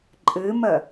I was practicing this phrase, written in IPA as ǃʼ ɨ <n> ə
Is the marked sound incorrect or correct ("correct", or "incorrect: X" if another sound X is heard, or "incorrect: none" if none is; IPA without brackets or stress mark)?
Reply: incorrect: m